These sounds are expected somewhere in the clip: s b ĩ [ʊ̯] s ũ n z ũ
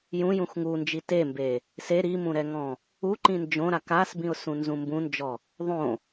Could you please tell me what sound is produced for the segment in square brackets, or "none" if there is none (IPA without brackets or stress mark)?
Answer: ʊ̯